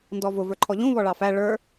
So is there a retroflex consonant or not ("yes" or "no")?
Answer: yes